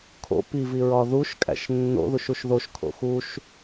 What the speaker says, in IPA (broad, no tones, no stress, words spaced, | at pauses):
kʰo̰ piviɹɒ ðuʃkʼæ̰ʃ nːo̰ðuʃuʃ ðoʃkʰo̰ xuʃ